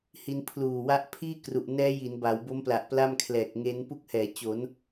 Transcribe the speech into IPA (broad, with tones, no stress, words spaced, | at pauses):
hi˧npʰluː˨˩wa˦˥ʔ pʰiː˥˩kru˨˩ʔnɛː˦˥ ji˩˦nba˩˦wbo˦˥mpla˨˩ʔ pla˥˩mkʰlɛː˨˩k̚ŋe˦˥n pu˦˥k̚hɛː˩˦ t͡ɕo˩˦n